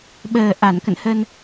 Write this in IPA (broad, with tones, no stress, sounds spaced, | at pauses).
ɓ əː˨˩ ʔ a˧˩ n k ə̰˧˨ n h ə˧ n